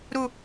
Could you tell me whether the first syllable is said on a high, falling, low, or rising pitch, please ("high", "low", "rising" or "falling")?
low